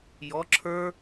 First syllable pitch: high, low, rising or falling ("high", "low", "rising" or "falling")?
rising